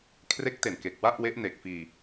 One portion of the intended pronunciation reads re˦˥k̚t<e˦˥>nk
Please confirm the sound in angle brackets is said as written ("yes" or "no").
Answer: no